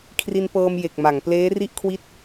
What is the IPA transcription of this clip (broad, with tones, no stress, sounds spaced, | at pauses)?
kʰ r i˧ n p ɤː˧ m j e˨˩ k̚ m a˩˦ ŋ p l eː˦˥ r i˥˩ ʔ kʰ w i˦˥ t̚